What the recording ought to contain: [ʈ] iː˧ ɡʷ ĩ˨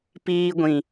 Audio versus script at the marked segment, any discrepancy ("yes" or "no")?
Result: yes